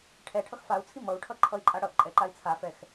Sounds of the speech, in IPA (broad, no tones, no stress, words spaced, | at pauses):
ʈʰɛ ʈʰʌxfau̯t͡sʰi mʌu̯ʈʰʌ ǃʰʌi̯ǃʼaɽʌʔǃʼɛ ǃai̯t͡sʰafɛx